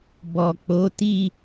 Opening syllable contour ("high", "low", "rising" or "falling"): low